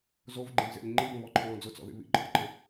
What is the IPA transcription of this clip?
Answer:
z o v ɡ͡ǃ ẽ v z ḛ lʲ ŋ͡ǃ i b ə̃ β ɔ ǃʰ ɔ̃ː d͡z ʊ t͡s ɔ̰ ð ḭ β ḭ ǃʼ ɔ̰ ǃ ə̃

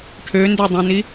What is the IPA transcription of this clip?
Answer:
ʈʰ ø n d ø dˤ ũ n i

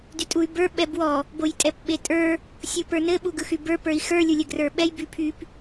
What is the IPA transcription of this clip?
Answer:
d y tʼ u y̯ b ə˞ ɓ ɛ b w ɔ | b o j tʼ ɛ p ɓ e tʼ ə˞ | sʲ u p ə˞ n ɘ ɓ u ɡ ɯ x y b ə˞ p ə˞ i̯ x ə˞ lʲ u lʲ ɘ ɡ r ə˞ ɓ ɛ j b y pʰ y p

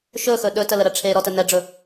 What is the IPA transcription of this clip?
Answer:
ʃ ɵ x ɵ ɗ ɵ t ə l ə ɾ ə ʈ͡ʂʰ e ɾ ɔ t ə n ɛ ɖ͡ʐ ɵ

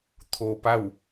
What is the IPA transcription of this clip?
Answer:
t̪ʰ o˧ p a˥˨ w

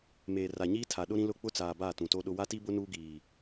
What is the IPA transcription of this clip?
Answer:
m eː˨ r a˨ ɲ iː˦ tʰ a˨ ɗ ʊ˦ ɾ ĩ˦ l ʊ˦˨ k͡p ʊ˦ t͡s aː˨ b aː˦˨ t ũ˨ t o˦ ɗ ʊ˦ w a˦ t i˦ b ʊ˦ n uː˦ ɡ iː˨

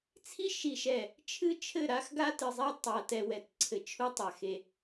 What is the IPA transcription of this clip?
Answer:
t͡sʰ i˦ ʃ i˨ ʃ ɛ˨ | t͡ʃʰ ɨ˦ t͡ʃʰ ɘ˦˨ ɾ a˦ x ɡ a˦ t ɨ˨ zˤ ɛ˦ tˤ a˨ t ɛ˨ w ɛ˨ t ǀʰ ɘ˨ t͡ʃʰ u˦ tˤ a˨ x e˨

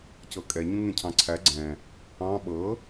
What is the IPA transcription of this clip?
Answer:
c ɤ kʼ ɛ ɲ ũ ŋ ẽ cʰ ɑ̃ ǀʰ æ ɡ͡ǀ ɛ̃ | ɑ̃ ɓ ɤ

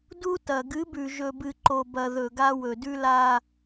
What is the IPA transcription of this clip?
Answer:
d u˦ t ɐ˨ ɡ ɨ˨˦ b ʉ˨ ʒ ɵ˨ b ɨ˨ ǃ o˨ b ɐ˨ ð ɵ˨ ɡ a˦ w ɵ˨ d ʉ˦ l a˦

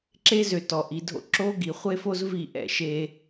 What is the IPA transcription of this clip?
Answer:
ǁ e˦ z ø˨ t ɔ˨ ʔ i˨ dʱ o̰˦ ǁ o˦ ɡ i˨ χʷ e˦ f o˦ z v i˦˨ ʔ ɛ̰˦˨ ʃ e˦

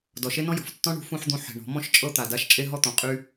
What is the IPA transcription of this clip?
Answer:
d ɔ˧ ʃ e˦ n ɔ̃˦ j ɔ̤˨ f tː ɔ̃˦ ɳ ṳ˨˦ f ũ˦ ħ d̪ ũ˦ ħ e̤˧ ɳ ɔ̤˨˦ m ɔ̃˦ ʃ t͡ʃʼ ɤ˦ t̪ a˧ d a˦ ʃ t͡ʃʼ e˦ ɦ ɔ˦ t̪ ɔ̃˧ qʼ y˦

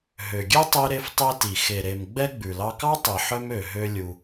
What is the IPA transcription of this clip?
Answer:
ɦ ø˩ ɡʲ e˥ tˤ i˧ ɾ e˧ f tˤ i˧ t i˩ x e˩ ɾ e˩ m ɡ͡b ɛ˧ ɡ͡b ʉ˩ l ɑ˧ k ɑ˥ tˤ i˩ ħ œ˥ m ø˩ ɦ ø˧ lʲ u˩

